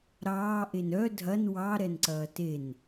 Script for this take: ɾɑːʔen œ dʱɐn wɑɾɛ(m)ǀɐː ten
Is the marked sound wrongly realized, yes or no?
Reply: yes